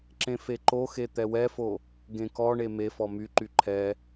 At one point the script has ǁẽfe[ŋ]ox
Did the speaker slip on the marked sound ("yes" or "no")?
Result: yes